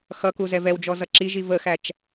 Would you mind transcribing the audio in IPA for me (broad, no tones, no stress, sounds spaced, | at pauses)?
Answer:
x ʌ k u z ɛ v ɛ w d͡ʒ ɔ z ʌ ǁ i ʒ i v ə x æ t͡ʃ